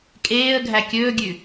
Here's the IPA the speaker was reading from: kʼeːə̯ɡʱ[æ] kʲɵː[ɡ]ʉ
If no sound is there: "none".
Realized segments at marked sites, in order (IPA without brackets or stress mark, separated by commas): æ, ɡʲ